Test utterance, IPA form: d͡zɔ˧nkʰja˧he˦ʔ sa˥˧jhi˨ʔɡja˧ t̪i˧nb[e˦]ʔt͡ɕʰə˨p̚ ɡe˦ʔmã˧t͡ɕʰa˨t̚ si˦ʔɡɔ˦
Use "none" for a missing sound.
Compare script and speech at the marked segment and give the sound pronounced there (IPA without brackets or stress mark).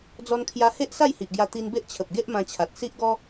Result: e˦